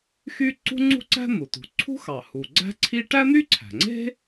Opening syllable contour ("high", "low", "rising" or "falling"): high